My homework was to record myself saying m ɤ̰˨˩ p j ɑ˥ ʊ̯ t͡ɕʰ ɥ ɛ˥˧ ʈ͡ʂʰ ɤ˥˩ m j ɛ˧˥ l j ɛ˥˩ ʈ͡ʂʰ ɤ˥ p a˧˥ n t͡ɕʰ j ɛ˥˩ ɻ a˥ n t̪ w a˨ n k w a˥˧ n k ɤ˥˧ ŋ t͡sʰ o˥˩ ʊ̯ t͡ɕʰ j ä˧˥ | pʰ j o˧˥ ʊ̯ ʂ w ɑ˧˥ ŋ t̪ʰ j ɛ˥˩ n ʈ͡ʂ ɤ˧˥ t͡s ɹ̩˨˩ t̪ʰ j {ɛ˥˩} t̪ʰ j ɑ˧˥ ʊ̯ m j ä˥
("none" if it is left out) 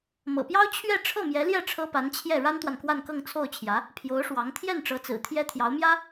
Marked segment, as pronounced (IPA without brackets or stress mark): ɛ˥